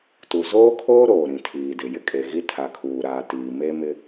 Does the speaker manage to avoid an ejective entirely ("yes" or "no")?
no